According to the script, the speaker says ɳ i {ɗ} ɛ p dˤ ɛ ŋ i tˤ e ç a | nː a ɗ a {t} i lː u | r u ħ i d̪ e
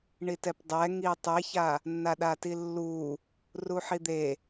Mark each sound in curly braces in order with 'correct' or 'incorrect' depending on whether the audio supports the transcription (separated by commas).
incorrect, correct